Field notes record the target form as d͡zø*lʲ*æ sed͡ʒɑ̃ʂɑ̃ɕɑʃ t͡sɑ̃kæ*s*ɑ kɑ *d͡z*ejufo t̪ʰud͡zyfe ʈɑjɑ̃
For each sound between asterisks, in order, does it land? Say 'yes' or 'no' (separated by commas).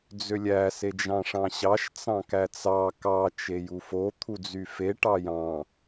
yes, no, no